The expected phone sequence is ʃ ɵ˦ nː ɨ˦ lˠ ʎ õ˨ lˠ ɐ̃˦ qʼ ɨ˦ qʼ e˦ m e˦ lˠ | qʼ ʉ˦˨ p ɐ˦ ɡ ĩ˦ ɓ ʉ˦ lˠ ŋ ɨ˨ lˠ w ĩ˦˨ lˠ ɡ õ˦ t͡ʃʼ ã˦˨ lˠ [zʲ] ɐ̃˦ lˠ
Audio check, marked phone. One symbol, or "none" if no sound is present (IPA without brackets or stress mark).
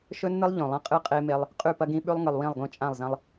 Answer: z